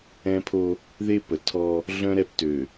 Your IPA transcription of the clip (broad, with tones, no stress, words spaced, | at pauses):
ɛ̃˦pʰo˦ | ðe˦ pə˨tʰɔ˦ | ɮœ̃˦ɾɛ˦˨ptø˨